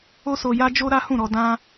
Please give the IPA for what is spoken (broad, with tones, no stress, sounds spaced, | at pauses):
o˦ s o˧ j a˦ d͡ʒ o˦ ɾ a˦ h ũ˦˨ ɾ ɔ˧ d ã˦